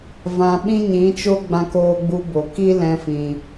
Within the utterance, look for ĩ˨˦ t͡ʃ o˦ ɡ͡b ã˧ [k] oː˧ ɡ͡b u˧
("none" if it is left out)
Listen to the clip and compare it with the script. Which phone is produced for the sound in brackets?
k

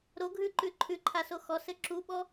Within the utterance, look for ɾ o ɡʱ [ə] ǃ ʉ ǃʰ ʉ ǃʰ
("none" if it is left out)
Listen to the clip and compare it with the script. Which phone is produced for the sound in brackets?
ʉ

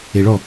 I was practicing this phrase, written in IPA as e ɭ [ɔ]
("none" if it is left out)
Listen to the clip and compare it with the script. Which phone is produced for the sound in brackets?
ɔ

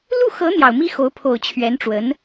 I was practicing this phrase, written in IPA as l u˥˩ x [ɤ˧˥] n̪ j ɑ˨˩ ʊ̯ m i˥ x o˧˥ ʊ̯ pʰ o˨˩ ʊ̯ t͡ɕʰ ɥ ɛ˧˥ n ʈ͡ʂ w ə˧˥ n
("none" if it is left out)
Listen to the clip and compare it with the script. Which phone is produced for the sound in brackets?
ɤ˧˥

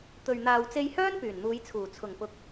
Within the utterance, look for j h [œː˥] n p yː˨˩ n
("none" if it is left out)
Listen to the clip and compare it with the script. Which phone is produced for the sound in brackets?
œː˥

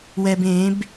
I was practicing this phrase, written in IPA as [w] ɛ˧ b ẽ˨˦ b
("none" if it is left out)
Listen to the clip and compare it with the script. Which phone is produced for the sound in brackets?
w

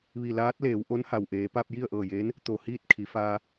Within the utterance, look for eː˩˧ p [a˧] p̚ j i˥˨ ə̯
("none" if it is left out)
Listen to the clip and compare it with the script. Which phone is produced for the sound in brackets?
a˧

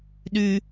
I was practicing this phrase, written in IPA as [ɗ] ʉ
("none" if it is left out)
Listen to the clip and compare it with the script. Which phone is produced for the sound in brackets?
ɗ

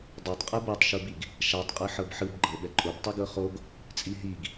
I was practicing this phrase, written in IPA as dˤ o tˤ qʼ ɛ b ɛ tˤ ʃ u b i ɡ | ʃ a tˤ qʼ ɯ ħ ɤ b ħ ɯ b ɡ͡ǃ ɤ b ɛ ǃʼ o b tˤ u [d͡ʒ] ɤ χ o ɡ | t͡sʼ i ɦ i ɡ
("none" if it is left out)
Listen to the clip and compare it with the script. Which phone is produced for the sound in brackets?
ɡ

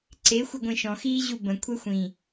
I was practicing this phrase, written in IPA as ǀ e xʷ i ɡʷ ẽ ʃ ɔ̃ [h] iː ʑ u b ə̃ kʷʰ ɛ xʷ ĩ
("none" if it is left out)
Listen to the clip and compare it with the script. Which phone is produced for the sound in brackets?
x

